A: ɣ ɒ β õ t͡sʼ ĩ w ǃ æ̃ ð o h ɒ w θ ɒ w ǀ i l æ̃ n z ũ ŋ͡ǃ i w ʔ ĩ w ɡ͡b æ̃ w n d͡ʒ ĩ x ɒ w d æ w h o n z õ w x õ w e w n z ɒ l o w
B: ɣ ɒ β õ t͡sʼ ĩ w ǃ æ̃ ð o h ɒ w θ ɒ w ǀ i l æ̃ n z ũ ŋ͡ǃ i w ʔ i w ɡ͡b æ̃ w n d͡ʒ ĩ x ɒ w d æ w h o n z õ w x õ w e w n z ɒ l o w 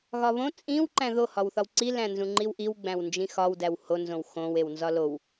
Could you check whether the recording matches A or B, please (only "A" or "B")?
B